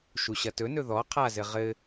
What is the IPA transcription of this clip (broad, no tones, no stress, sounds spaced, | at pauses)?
ʃ u ɕ ɐ t ɵ n ɵ ð ɔ qʰ a z ɘ ʁ ɘ